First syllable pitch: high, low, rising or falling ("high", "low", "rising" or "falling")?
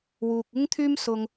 low